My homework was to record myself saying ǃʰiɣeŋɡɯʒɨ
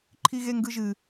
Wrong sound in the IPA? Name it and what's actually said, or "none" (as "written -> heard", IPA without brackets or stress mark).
none